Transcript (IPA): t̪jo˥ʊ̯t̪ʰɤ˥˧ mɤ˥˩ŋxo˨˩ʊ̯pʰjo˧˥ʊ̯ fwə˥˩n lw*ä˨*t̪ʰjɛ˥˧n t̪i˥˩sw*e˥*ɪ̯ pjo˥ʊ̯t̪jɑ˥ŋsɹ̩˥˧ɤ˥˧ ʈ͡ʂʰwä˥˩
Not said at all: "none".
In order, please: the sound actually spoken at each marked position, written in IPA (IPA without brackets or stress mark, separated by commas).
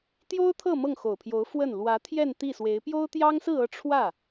ä˧˥, e˧˥